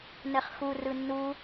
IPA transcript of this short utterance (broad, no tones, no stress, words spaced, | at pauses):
nɛχxu rɯnːu